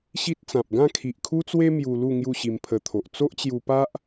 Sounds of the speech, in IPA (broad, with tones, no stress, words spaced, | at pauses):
ɕi˦t̚t͡sã˨p̚ ɡã˥˧kʰi˨ʔkʰu˦t͡swe˦ mju˧lu˥˧ ŋju˥˧ɕi˧mpʰə˧t̪ʰo˨ʔ t͡so˦ʔt͡ɕju˧pa˦ʔ